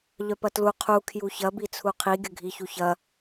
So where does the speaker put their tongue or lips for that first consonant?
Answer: palate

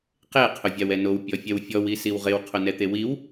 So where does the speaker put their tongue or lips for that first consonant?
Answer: uvula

